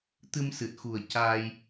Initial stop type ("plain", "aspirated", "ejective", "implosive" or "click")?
plain